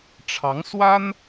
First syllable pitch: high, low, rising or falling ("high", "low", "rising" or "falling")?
rising